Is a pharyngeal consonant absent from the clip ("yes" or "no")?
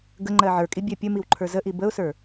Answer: no